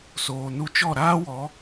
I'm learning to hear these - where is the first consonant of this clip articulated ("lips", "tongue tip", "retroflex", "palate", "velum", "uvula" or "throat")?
tongue tip